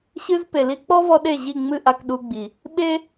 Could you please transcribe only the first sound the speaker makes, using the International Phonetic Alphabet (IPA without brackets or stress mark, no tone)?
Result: ɕ